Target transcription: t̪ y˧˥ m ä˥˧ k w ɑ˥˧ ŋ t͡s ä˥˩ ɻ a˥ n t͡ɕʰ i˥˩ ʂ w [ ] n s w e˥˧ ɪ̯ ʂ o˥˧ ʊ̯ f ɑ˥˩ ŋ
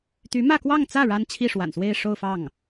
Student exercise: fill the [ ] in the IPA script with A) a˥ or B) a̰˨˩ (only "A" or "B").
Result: B